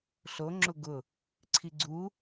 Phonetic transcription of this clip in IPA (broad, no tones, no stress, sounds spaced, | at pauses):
ɬ o ŋ͡ǁ ʊ ɡ ʊ | ǀʰ i ɡ͡ǀ u